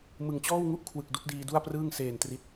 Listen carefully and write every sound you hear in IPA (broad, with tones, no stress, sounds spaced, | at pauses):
m ɯ˨˩ ŋ t͡ɕ ɔː˥˩ w ŋ u˦˥ ʔ kʰ w ɯ˨˩ k̚ d u˦˥ k̚ d iː˧ d u˥˩ a̯ p r ɯː˥˩ ŋ s eː˨˩ n t r i˨˩ t̚